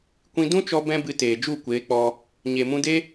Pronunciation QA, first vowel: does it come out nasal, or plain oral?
nasal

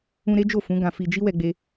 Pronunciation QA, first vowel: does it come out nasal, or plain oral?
nasal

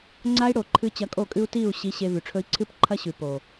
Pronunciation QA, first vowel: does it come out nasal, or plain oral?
oral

